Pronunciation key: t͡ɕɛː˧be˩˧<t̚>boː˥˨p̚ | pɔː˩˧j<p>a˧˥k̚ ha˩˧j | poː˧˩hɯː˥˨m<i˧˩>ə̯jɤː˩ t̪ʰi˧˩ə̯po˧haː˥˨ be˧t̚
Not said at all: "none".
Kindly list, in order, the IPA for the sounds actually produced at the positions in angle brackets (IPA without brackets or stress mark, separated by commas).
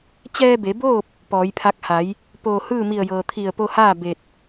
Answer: none, pʰ, i˧˩